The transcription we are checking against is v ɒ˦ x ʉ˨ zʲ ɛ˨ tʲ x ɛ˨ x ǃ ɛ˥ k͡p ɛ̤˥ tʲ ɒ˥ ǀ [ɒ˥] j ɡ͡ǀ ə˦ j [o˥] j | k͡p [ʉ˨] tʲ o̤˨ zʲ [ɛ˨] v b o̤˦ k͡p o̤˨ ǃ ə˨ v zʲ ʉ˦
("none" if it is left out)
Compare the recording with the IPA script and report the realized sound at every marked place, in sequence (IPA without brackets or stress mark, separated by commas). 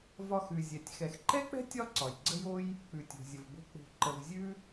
ɒ˩, o˥, ʉ˨, ə˨